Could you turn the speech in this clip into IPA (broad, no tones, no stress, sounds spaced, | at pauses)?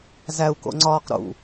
z æ u̯ k o̰ ŋ͡ǀ ɒː q ɾ ṵ